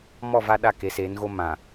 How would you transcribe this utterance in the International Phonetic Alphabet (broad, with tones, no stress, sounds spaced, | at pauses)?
m ɔ˦˨ v a˦ ɗ a˦˨ k e˨˦ s eː˨˦ n ɣ o˦ m ã˨